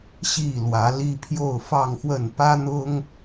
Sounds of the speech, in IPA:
ɕi˥˨lwä˨˦ li˦pʰjo˥˨ʊ̯fɑ˥˨ŋxwə˥˨n pä˦n̪ʊ˦ŋ

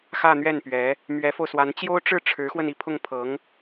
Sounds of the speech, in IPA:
xä˥˧n̪ɥɛ˥˩npɥɛ˧˥ | mɥɛ˧˥fo˧ʊ̯swa˧˥n t͡ɕjo˥ʊ̯ʈ͡ʂɻ̩˥˩ ʈ͡ʂʰɻ̩˧˥xwə˧n i˥˧pʰʊ˥˩ŋpʰɤ˧˥ŋ

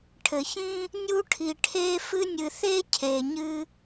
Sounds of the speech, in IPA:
ʈʰɘ˩çĩ˥ | nʲu˦ʈʰi˨ʈʰe˦ fɨ˦nʲɨ˨θe˥ cʰe˨ɲɨ˦

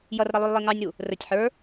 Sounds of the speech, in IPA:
jʌrɾʌlˠujlˠi ŋɑnʲɾu | rətʲ ħə˞

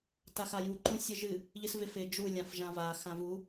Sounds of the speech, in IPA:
taxaju ǃũsʲɨʒɨ | ʎɨsvɪf ɪ d͡ʒu lʲãfʒãva xãvu

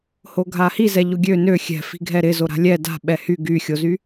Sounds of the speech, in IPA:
hoɡʱahi zɛʎʊɡʲø nø xʲɛ̤fi̤ ɡʱɛɾɪ zoɾa̤lʲɛ da̤ ɓɛhy ɡyxʲozy

